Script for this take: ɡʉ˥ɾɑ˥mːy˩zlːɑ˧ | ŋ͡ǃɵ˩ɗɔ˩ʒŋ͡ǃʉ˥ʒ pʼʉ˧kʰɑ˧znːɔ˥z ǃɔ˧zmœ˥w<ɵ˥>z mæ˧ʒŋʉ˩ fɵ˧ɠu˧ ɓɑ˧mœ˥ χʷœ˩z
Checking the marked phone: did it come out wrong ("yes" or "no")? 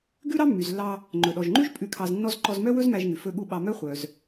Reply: no